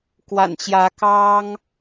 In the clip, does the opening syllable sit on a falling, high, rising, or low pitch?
low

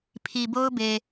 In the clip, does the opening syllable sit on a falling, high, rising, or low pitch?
low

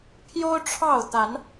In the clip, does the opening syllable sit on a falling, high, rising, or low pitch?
high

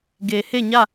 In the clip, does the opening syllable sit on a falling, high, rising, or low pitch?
low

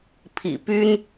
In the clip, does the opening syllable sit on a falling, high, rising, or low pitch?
low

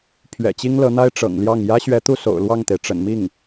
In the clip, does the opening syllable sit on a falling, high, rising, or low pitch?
low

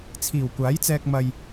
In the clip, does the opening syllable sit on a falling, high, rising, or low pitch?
low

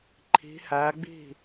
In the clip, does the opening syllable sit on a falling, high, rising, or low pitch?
rising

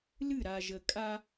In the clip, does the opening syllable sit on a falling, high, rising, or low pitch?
falling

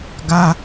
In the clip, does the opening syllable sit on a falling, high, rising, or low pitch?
high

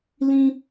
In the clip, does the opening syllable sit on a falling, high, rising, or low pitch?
high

